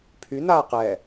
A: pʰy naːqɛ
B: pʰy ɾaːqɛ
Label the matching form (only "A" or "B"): A